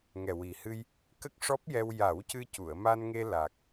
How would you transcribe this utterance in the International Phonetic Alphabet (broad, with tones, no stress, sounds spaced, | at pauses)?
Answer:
ŋ ɛ˨˩ w i˨˩ h ɨ˧ j | k ə˦˥ k̚ ʂ ɔ˦˥ p̚ j ɛ˧ w j a˨˩˦ w c ɨ˧ c u˨˩˨ ə̯ m a˧ n ŋ e˧ l a˨˩ k̚